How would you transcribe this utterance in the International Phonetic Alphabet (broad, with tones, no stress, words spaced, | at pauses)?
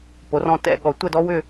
po˨˥rɔ̃˥˧tɛ̰˥˧ ɠɔ˨˩˦tʷə˥˧dɔ˥ wʏ˥˧